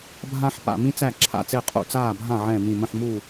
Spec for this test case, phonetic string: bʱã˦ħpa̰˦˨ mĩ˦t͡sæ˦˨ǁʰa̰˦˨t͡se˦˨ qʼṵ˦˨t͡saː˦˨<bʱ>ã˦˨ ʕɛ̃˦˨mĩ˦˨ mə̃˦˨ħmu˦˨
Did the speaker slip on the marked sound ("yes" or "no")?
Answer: no